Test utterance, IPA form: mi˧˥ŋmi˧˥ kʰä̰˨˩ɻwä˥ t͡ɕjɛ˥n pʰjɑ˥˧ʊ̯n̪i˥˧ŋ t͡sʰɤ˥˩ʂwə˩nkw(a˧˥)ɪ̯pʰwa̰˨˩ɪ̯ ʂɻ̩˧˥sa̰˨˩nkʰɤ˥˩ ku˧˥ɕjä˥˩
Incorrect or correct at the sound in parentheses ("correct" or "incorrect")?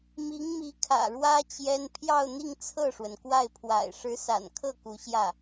incorrect